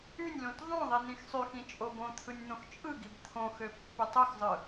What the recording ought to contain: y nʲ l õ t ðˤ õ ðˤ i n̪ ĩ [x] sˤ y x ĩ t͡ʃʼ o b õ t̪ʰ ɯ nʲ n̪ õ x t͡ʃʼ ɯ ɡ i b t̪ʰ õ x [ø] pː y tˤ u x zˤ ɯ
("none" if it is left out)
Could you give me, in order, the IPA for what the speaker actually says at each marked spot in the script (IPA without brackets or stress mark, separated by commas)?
x, ø